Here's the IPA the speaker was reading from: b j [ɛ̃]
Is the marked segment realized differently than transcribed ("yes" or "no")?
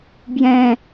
no